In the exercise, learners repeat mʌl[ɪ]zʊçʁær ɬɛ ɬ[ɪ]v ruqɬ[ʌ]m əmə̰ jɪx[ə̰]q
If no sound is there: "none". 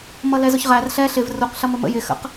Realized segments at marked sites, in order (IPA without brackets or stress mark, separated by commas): ɛ, ɪ, ʌ, ə̰